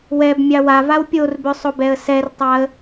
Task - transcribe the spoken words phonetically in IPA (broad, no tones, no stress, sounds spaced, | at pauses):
w ɛ b mʲ ɑ w a v a w pʲ o r b ʏ sˤ o b ɛ ə̯ s ɛ r tˤ ɑ ə̯